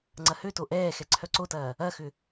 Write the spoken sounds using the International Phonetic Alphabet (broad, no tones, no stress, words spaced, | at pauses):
ŋ͡ǀɐhøto ʔɛː xɛǀʰœǀotɐː | ɐxʏ